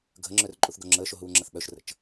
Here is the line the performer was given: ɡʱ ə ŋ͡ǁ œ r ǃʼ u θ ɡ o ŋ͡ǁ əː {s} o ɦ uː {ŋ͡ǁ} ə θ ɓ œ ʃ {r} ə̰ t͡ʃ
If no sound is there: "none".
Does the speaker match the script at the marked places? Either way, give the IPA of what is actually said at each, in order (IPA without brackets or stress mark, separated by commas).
ʃ, ŋ͡ǁ, r